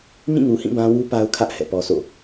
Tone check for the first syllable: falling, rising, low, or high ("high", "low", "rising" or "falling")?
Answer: falling